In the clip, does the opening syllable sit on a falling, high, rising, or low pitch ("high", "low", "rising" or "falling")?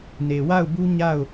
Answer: low